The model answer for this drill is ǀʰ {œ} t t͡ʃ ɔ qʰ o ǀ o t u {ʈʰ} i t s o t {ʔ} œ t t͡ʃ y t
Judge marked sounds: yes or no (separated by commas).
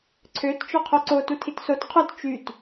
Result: no, no, no